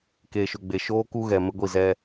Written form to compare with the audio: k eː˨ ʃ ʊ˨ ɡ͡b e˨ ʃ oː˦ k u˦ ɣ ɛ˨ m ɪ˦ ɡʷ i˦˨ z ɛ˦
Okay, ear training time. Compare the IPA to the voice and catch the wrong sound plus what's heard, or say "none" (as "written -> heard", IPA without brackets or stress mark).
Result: none